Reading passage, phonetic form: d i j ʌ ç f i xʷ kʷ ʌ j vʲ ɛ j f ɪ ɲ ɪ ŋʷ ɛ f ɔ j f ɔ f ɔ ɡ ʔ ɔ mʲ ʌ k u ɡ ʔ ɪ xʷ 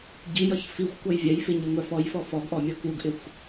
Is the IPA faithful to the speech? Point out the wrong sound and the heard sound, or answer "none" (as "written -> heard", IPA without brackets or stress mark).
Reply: d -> ɟ